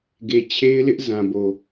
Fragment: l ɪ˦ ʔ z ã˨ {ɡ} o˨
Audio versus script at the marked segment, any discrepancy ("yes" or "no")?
yes